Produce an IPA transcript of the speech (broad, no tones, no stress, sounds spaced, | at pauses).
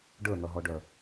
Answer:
ɖ ə˞ n̪ ʌ ɦ ɔ ɖ œ